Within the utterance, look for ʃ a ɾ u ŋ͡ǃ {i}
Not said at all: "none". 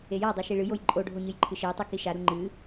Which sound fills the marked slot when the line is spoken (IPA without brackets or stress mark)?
ɨ